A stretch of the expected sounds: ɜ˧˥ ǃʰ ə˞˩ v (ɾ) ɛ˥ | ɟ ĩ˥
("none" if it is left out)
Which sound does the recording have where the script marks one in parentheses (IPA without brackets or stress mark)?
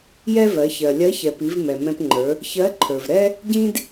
ɾ